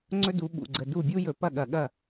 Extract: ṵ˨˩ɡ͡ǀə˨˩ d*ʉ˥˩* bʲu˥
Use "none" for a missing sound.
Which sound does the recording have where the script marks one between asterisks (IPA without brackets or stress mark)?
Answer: u˥˩